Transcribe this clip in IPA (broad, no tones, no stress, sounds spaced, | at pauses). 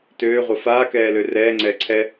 t øː ʁʷ ə f aː k ɛː l ø r ɛː ŋ͡ǀ ɛː ǀʰ ɛ